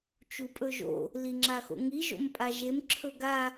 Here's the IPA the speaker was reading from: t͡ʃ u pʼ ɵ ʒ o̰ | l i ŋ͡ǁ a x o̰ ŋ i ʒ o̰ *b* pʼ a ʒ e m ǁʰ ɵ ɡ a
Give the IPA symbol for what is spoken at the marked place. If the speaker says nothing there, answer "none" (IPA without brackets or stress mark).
m